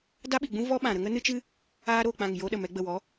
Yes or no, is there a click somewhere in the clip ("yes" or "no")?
no